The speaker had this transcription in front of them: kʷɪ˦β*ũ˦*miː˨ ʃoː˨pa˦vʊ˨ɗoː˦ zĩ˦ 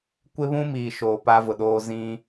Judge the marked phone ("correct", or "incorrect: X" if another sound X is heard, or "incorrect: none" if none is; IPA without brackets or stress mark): correct